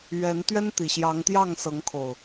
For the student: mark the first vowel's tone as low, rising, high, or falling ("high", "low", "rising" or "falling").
rising